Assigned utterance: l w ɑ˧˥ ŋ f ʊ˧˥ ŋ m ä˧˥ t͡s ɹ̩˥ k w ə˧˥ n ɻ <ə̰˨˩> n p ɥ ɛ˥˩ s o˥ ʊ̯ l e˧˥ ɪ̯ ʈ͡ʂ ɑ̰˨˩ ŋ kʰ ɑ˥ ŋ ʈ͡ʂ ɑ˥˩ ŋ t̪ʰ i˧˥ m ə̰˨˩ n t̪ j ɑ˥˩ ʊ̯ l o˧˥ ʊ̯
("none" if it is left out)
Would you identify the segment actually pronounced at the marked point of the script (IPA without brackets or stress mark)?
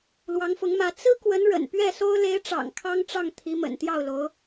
ə̰˨˩